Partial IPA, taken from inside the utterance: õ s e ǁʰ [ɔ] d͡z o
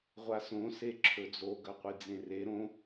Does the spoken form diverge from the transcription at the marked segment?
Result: yes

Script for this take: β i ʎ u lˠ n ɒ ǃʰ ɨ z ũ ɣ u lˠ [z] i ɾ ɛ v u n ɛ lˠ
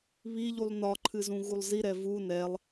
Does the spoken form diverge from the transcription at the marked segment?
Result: no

